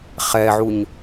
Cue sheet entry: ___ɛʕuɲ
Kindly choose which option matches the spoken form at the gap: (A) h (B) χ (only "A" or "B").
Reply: B